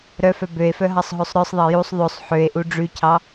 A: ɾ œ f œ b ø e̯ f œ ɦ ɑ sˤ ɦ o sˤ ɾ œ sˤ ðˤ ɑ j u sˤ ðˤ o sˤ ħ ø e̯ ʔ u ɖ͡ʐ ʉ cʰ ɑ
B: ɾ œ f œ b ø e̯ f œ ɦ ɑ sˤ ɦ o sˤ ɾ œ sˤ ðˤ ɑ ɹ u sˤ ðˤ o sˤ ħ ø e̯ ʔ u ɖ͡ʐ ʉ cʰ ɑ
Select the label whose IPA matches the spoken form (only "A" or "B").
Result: A